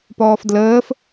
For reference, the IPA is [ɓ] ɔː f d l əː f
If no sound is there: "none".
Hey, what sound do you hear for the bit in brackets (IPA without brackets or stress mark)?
p